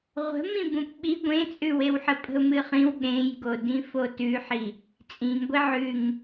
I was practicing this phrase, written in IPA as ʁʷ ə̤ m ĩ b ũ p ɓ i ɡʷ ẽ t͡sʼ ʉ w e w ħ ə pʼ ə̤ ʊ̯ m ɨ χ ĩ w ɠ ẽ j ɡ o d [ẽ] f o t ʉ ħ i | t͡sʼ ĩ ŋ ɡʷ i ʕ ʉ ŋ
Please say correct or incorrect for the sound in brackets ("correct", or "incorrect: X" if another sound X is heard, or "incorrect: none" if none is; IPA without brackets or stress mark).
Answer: incorrect: ĩ